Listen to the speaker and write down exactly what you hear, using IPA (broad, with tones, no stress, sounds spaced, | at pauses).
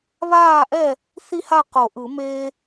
β aː˥˨ ʔ ɛ˥˨ | θ i˥˨ h a˥˨ q o˨˩˦ ʔ ɯ˨˩˦ m eː˥